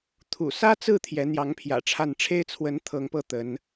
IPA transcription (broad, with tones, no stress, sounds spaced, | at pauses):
t̪ʰ ṵ˨˩ s ä˥ t͡s ɹ̩˥˩ t̪ʰ j ɛ˧˥ n̪ j ɑ˧˥ ŋ pʰ j ä̰˨˩ ʈ͡ʂʰ a˥˩ n ʈ͡ʂʰ e˥ ɪ̯ t͡sʰ w ə˧˥ n t̪ʰ ɤ˧˥ ŋ p ɤ˥˩ t̪ ə˧˥ n